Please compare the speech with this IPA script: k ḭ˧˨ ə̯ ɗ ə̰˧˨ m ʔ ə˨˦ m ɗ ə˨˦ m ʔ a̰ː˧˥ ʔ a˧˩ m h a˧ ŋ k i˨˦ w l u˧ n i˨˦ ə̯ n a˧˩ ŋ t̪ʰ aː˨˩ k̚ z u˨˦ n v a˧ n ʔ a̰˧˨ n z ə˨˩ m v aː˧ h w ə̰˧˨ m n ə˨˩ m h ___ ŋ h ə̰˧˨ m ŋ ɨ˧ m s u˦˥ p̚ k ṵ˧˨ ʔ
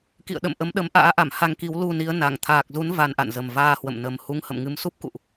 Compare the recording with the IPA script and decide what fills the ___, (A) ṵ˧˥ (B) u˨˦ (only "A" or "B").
B